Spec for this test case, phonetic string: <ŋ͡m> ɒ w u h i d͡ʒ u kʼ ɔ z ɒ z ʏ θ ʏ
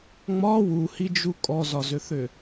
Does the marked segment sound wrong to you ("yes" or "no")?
no